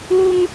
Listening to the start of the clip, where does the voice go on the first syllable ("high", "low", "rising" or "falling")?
high